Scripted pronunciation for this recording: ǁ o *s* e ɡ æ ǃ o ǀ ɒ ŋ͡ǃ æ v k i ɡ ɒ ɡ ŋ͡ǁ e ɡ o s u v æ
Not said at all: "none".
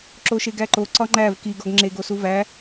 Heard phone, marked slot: ʃ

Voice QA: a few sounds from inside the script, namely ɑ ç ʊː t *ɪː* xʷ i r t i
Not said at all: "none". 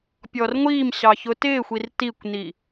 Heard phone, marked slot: ɪː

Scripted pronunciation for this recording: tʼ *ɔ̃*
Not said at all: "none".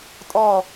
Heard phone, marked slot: ɔ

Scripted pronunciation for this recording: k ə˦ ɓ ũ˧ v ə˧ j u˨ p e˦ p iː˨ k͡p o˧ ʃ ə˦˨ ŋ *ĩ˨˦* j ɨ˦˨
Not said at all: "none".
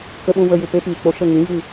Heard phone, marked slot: ĩ˨˦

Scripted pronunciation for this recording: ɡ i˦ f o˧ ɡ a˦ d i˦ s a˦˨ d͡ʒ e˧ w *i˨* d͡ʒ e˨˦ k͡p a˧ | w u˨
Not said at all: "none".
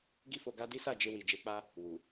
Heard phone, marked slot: i˨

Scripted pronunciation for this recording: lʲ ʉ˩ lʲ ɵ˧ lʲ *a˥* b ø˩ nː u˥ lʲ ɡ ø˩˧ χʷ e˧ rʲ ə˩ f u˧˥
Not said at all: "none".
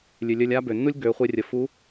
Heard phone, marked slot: a˥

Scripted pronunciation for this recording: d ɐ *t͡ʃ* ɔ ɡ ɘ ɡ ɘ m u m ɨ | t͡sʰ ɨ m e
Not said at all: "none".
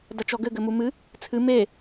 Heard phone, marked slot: t͡ʃ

